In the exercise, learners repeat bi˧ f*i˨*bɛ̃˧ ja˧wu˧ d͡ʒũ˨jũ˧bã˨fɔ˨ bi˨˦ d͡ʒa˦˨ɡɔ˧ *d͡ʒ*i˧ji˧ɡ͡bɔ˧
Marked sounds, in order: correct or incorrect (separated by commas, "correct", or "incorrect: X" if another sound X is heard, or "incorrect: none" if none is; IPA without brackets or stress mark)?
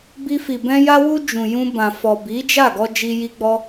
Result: correct, correct